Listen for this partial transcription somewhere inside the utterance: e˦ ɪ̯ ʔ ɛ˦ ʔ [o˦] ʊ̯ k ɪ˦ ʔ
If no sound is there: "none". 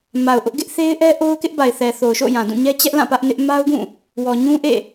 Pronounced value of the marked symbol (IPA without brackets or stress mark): o˦